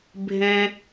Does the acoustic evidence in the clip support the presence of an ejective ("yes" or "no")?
no